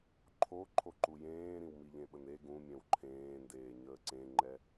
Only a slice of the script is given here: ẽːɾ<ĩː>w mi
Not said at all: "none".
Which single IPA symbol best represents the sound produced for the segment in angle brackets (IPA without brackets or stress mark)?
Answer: ĩ